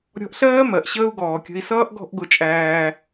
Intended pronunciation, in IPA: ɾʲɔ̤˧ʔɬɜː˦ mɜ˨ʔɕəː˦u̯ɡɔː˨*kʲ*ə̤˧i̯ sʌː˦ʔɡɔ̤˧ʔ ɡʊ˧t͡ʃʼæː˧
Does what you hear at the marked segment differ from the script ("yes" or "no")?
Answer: no